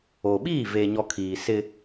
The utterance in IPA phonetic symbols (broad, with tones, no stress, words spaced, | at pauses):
o˨ ɓiː˦˨veː˨ɲɔ˨ kʰiː˨sɪ˦